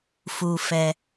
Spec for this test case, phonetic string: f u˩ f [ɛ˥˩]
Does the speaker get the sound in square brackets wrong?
yes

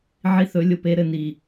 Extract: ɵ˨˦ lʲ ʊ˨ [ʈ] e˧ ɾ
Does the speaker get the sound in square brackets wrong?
yes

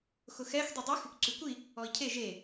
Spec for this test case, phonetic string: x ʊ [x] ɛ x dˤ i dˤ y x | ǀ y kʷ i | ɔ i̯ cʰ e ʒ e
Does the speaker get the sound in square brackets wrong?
no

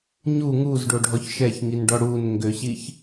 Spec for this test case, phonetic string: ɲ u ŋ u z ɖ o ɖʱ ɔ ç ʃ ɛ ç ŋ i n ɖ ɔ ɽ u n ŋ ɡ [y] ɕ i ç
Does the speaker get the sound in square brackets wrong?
yes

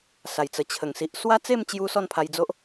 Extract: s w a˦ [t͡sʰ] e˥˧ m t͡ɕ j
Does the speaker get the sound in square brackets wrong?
yes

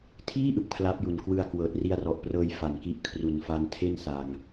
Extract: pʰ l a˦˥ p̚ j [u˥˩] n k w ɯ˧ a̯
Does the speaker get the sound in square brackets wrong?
yes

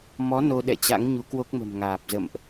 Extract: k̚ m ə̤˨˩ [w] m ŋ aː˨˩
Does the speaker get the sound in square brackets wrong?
yes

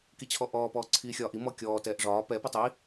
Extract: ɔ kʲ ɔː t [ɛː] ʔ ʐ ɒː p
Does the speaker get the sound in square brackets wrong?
no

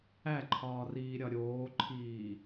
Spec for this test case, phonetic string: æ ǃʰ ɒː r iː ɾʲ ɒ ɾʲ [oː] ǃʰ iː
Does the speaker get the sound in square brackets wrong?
no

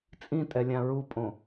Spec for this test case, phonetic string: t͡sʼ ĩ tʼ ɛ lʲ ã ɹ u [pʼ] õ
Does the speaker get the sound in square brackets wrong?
no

